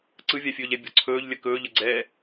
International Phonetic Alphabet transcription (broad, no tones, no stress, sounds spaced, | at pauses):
ǀ ɯ vʲ a fʲ ɵː ʎ ɛ bʲ ɔ̤ ǀʰ ɵː ʎ lʲ ə k ɵː ʎ ə ɡ͡ǀ ɛː